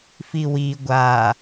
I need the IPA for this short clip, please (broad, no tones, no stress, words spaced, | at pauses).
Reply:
fiwi ɡʷa